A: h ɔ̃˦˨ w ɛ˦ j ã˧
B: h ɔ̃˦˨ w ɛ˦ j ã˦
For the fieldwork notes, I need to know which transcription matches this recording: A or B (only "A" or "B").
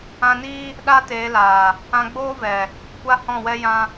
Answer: B